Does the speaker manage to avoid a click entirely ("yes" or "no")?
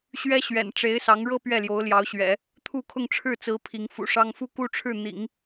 yes